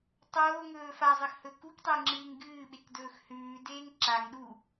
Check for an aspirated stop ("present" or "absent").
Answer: absent